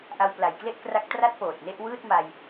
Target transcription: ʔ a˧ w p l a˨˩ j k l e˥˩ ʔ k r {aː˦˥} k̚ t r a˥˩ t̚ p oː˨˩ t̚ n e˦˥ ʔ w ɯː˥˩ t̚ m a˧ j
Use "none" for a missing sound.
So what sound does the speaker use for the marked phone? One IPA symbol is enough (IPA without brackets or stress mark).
a˦˥